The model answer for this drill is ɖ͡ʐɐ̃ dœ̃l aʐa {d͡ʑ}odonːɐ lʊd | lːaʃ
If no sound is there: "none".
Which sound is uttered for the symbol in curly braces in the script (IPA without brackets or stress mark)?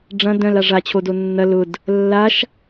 t͡ɕʰ